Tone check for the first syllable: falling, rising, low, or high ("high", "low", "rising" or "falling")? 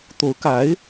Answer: rising